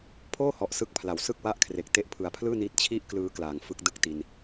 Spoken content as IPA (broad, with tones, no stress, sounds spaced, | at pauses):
pʰ oː˥˩ h ɔ˨˩ ʔ s ɯ˦˥ k̚ pʰ l a˩˦ w s ɯ˥˩ k̚ w a˥˩ ʔ kʰ r e˨˩ k̚ t e˦˥ ʔ pʰ ɯ˨˩ a̯ pʰ l ɯː˥˩ n iː˦˥ t̚ t͡ɕʰ i˥˩ ʔ k l ɯː˦˥ k l aː˨˩ ŋ f ɯ˦˥ k̚ d ɯ˥˩ k̚ t i˧ n